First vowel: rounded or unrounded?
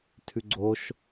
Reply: rounded